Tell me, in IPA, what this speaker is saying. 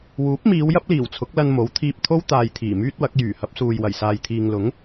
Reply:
w uː˨˥ p̚ m iː˨˧ w j ɐ˥ p̚ l iː˨˩ w t͡sʰ ʊ˨˥ k̚ l ɐ˧ n m o˨˥ w t̪ʰ iː˧ p̚ t̪ʰ o˥ w t̪ aː˧ j t̪ʰ iː˨˩ m yː˥ t̚ w ɐ˨˥ k̚ j yː˨˩ h ɐ˧ p̚ s uː˨ j w ɐ˨˩ j s aː˨ j t̪ʰ iː˨ ŋ l ʊ˨˥ ŋ

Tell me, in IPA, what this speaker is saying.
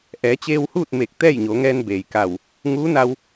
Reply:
ʔ ɛː˩˧ t͡ɕ eː˧ w h uː˥˨ t̚ m eː˧˩ k̚ t̪ ɛː˥˨ j ɲ o˩˧ ŋ ɛː˧ n b eː˩ j k a˧˩ w | ŋ uː˧˥ n a˧ w

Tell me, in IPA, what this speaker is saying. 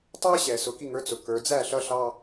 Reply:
tˤ ə˞˦ ɕ ɛː˨ s ʊ˨ k i˧ ŋ ə˞˨˦ t͡s ʊ˨ kː ə˞˨ d͡z æ˦˨ ɬ ʌ˧ ɬ ɑ˧

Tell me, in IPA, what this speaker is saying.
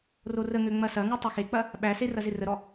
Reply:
r o r ə ŋ ø ŋ͡m ɐ s ɐ ŋ u tˤ ø x e k͡p ɐ | ɓ æ s e r ɐ z ɪ r ə ɾ ɔ

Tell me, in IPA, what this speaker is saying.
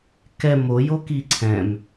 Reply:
k ɛ m o j o k i ǀʰ ɛ̃ m

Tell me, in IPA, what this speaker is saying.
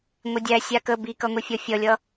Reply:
ŋʷ ɪ dʲ æ sʲ a k ə b i k ʌ ŋʷ i fʲ ɔ fʲ ʌ lʲ ʌ

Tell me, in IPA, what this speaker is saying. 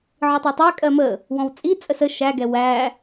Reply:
ʕ ɯ tˤ ɜ tˤ æ kʼ ɜ m ə | w ɔ̃ w t͡sʼ i t͡sʼ ə s ə ʃ æ ɡ ɛ w æ

